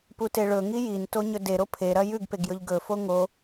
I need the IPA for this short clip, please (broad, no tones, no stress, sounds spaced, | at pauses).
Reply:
p u t e ɭ ɵ ŋ i j i n t o ɲ ɵ d e ɾ o pʰ e ɾ ɐ j ʉ ɡ p e ɡ j ɵ ʎ ɡ ɵ f o ŋ o